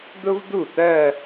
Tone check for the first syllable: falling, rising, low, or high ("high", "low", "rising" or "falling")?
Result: high